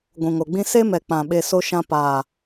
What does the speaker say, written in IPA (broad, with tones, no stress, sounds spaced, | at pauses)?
ɡʷ ũ˨ ŋ o˨ ɡ͡b ĩ˦ s e˦ m ɛ˨ k͡p ã˨ ɓ e˧ s o˦ ʃ ã˦ p aː˨